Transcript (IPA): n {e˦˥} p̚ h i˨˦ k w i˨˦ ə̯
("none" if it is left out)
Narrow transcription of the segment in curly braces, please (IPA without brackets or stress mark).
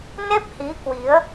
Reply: e˦˥